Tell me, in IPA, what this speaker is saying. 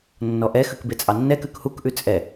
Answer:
nːɔʔɛxʉk bet͡sʼɑnːɛkʉk hukʔʉ t͡sʼɛ

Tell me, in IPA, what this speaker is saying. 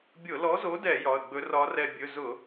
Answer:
bʲʊ˧˩˧lɔ˨˥zo˨˥dɛ˧˩˧ jɒ˩˧˩ə̯ɡ͡bɵ˨˥ rɒ˨˥rɛ˧˩ bʲɵ˩˧˩zʊ˧˩˧

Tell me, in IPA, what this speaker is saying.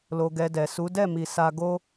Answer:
lo˧ɡɛ˧dɛ˨ su˨˦dɛ˦˨mi˨ sa˧ɡo˦

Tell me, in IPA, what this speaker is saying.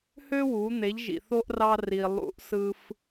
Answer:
hø˥wu˩˧ n̪e˩˧ʎʒḭ˩θo˧ʔ rɑ˧ri˩ lˠṵ˧˥ʔsɯ˧f

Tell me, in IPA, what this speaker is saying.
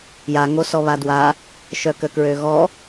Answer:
jaŋosɔ βadwa | ʃœkəkɹøɣɔ

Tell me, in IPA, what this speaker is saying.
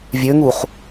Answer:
vʲøŋuχ

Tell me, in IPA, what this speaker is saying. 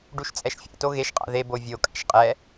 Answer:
ɖuʃt͡sʼɛʃfʲa̰to ɣeʃqʼa̰ ðe bovʲo kʼa̰ʃqʼɛ

